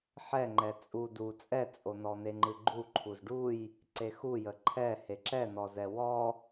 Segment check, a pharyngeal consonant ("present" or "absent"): present